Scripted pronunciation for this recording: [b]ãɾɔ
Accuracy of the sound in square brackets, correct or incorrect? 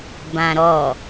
correct